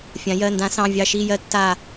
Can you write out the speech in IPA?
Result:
fʲã˩˧jɜ˩˧˩ndã˨˥sɑ̃˩˧˩ vʲɑ˧˩ʃiː˧˩jɜ˨˥ tːaː˧˩

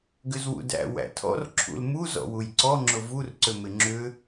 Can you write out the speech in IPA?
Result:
ɡʏzwṵdæ̰ wæ̰tʰɔ̰r ǁʰṵlmu zɔ̰wujǀɔ ŋ͡ǁʊvur ǀʏmɪŋ͡ǁʏ

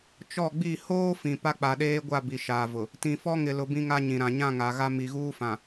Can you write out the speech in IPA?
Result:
t͡ʃɔ˦˨ ɡ͡bi˦˨ hoː˦ fĩ˨ pa˦k͡pa˨ɗeː˦ɡʷa˦˨ bi˨ʃaː˨vʊ˨ | tĩ˨fɔ˦ŋɪ˨lʊ˨ bĩ˦ŋa˦ɲĩ˨ɾã˨ ɲã˦˨ŋa˨ɣa˦ mi˨ ɣuː˦fã˨

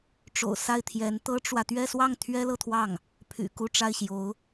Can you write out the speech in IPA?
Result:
ʈ͡ʂo̰˨˩ʊ̯ sa˥˩ɪ̯t̪ʰjɛ˧˥n t̪ɤ˥ʈ͡ʂwä˨ t̪ɥɛ˥˧swɑ˥˩ŋ t̪ʰɥɛ˥lɤ˥˧t̪ʰwɑ˥˩ŋ | pʰy̰˨˩ ku˥˧ʈ͡ʂa˥˩ɪ̯ɕjo˧˥ʊ̯

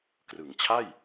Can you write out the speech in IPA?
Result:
krɯ˩˦ŋt͡ɕʰa˥˩j

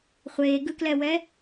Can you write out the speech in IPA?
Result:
χʷeːɡɯklɛwɛ

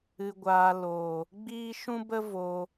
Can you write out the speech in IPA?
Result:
ɨ˧ɡʷaː˧ loː˨ | ɡ͡biː˦ ʃũ˦bə˦ voː˧

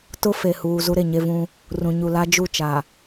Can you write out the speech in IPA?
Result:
tʊ˦ fe˨huː˨ zu˦ɾe˨ɲe˦vũ˦ | rũ˨ɲu˨la˦ d͡ʒu˦˨t͡ʃa˨

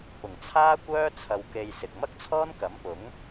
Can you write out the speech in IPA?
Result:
pʊ˨˩ŋt͡sʰaː˥ kʷœː˥ t͡sʰɐ˨wke˨j sɪ˨k̚mɐ˥k̚t͡sʰɔː˥nkɐ˨˥m pʊ˨˥ŋ

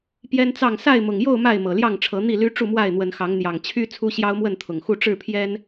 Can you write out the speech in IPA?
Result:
pjɛ˦nt͡sɑ˥˨ŋ sa˥˨ɪ̯mʊ˨˩ŋjo˥˨ʊ̯ ma˥˨ɪ̯mɤ˨˩ljɑ˥˨ŋʈ͡ʂʰɤ˨˦ n̪i˥˨ly˦ ʈ͡ʂu˥˨mwa˥˨ɪ̯n̪wə˨˦nxɑ˨˦ŋ n̪jɑ˨˩ŋt͡ɕʰy˦ t͡sʰu˦ɕjɑ˦ʊ̯mwə˥˨nt̪ʰʊ˨˩ŋ xu˥˨ ʈ͡ʂɻ̩˥˨pʰjɛ˦n

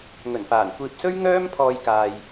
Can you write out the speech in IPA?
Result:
ŋɵ˨˩nfaː˨˩n kʷiː˨p̚sɵ˥ɥ ŋœː˥mpʰɔː˧j kaː˨j

